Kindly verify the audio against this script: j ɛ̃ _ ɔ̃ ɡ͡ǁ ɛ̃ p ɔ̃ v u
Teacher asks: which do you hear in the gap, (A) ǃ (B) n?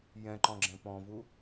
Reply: A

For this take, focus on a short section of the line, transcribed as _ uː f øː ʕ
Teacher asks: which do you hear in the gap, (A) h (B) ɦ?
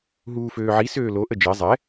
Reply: B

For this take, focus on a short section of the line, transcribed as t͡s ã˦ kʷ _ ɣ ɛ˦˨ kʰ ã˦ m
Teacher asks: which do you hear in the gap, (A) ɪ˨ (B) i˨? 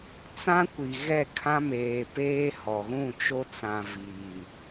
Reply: B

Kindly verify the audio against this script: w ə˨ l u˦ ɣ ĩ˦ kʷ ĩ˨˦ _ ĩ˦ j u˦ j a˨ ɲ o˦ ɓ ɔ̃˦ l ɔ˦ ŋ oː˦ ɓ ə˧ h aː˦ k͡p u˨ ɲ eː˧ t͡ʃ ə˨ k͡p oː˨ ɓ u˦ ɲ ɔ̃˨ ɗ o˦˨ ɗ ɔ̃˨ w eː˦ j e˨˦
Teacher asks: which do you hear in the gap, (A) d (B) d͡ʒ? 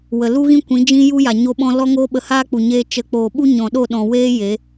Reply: B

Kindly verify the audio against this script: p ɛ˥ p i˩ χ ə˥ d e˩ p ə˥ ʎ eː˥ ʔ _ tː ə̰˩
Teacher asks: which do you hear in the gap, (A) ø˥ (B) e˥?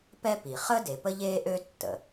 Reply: A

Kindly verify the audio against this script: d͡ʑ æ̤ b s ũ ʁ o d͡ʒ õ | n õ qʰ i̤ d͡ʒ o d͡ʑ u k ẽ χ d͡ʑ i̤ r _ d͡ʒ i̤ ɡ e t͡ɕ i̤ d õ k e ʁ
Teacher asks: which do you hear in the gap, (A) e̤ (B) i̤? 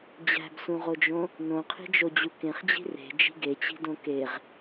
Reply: A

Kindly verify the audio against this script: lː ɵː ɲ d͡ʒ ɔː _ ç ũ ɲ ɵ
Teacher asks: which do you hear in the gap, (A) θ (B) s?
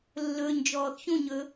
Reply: A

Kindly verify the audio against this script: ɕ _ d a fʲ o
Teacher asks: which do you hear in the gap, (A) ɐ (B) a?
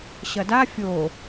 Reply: A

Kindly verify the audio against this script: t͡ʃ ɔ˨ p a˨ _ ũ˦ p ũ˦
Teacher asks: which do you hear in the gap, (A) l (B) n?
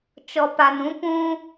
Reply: B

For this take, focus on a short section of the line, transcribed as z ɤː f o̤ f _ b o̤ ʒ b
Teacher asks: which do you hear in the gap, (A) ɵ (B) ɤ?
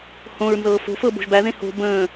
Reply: B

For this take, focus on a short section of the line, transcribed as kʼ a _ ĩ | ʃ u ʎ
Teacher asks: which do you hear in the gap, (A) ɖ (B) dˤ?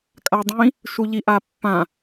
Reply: B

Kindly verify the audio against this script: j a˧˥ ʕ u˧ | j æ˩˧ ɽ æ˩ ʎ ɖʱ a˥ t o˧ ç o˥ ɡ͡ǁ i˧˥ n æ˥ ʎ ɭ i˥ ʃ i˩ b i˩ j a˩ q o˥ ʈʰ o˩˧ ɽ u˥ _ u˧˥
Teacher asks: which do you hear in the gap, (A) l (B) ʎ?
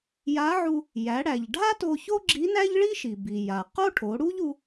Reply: B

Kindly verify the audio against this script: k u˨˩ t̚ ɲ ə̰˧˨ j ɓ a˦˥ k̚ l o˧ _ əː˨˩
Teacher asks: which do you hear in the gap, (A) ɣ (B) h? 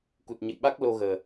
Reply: A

